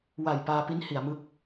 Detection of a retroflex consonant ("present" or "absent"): absent